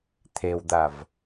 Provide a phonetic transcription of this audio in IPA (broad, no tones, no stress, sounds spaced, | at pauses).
t̪ʰ e w d̪ a v